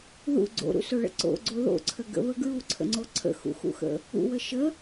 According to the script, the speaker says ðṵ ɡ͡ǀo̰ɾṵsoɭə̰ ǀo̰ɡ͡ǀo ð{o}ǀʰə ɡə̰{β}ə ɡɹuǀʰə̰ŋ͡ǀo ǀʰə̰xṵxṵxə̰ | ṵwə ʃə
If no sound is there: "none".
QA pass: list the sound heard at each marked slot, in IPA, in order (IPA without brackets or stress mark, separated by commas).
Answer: o̰, β